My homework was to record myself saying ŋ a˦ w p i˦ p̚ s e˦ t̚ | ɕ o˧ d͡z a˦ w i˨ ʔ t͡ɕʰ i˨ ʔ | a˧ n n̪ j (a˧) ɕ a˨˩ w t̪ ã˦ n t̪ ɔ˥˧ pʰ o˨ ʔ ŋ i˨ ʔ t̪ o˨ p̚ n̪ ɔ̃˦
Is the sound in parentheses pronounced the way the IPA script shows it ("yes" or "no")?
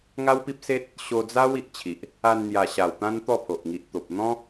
no